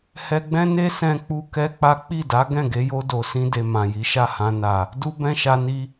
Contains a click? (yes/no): no